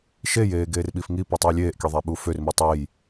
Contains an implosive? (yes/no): yes